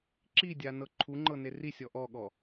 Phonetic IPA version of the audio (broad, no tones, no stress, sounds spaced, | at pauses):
ǁ i dʲ a n ɤ ǃʰ u ŋ͡ǃ ɤ n e r i sʲ ɔ ʔ ɔ ɠ ɔ